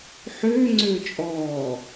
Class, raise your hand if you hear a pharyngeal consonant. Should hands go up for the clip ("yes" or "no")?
yes